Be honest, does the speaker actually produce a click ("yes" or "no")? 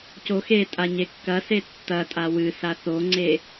yes